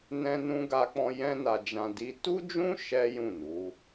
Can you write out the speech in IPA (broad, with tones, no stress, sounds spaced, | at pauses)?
n ɛ̃˦ n ũ˦ ɡ a˧ k͡p ɔ̃˧ j ɛ̃˦ n a˧ d͡ʒ ã˧ d i˦ t u˦ d͡ʒ ũ˦ ʃ ɛ˦ j ũ˦˨ n u˨˦